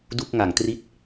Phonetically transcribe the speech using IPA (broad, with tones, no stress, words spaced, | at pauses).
du˥˩k̚ŋa˩˦ŋtri˥˩t̚